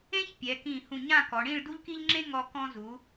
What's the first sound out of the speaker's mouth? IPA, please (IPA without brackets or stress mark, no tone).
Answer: ẽ